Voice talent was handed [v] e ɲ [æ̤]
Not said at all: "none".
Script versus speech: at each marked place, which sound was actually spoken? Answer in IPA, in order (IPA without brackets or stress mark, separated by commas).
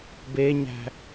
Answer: b, æ̤